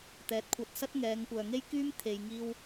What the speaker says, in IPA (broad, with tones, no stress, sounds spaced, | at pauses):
t̪ ɛː˨˥ t̚ kʷʰ ɐ˧ t̚ s ɐ˥ t̚ ŋ ɛː˨˧ ŋ kʷ œː˨ ŋ e˥ j k yː˥ m t̪ʰ e˨ j ŋ iː˥ w